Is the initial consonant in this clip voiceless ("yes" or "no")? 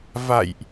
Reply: no